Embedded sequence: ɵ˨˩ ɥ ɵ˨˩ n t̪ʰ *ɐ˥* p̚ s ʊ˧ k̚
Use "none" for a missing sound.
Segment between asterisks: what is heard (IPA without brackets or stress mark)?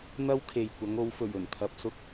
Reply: ɐ˨